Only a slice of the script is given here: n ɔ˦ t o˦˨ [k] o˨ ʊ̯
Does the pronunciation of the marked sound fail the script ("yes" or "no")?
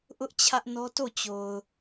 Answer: yes